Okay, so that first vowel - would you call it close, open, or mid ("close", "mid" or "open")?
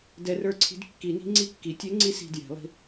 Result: mid